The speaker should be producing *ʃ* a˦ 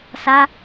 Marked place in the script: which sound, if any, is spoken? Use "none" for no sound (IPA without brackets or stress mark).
s